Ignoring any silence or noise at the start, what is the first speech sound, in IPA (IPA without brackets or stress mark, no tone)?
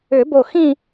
ʏ